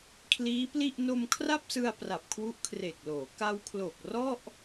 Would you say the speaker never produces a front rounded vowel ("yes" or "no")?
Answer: yes